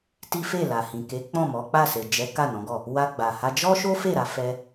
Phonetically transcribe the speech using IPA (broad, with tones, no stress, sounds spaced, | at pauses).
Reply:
t i˦ f e˦˨ l a˨ h ĩ˨ k e˨˦ k͡p ɔ̃˦˨ m ɔ˨˦ k͡p a˦˨ s e˨ d͡ʒ ɛ˨˦ k a˦˨ n ɔ̃˨˦ ɡ ɔ˦˨ | w a˧ ɡ͡b a˨ h a˧ d͡ʒ ɔ˦ ʃ o˦ f e˦˨ ɾ a˧ f ɛ˧